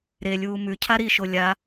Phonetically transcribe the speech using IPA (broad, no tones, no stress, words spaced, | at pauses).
ɾelʲuː mʉ cʰaɾiʃo lʲa